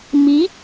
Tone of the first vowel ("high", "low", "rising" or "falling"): rising